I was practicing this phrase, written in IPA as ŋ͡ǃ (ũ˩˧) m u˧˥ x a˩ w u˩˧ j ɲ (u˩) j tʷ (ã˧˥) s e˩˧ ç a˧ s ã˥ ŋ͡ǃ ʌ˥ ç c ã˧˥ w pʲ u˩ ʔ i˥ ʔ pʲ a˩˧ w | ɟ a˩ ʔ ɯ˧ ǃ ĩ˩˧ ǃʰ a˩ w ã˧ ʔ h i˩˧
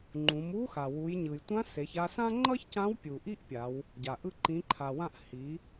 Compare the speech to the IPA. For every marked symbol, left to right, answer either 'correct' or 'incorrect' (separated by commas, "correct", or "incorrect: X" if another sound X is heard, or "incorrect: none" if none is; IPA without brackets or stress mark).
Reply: correct, incorrect: ɯ˩, correct